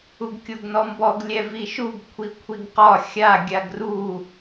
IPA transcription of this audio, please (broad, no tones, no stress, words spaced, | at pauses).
uɡkʲoɡnɔmbɔɡ lʲɛviʃuɡ kʷʰikʷʰiɡqɒ xʲa ɡʲaɡru